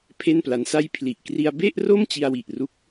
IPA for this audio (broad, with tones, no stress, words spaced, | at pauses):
pʰe˥˩npla˦˥nsa˥˩j pʰli˨˩ʔkri˧a̯ be˥˩ʔro˥˩m t͡ɕi˧a̯wi˨˩ʔru˦˥k̚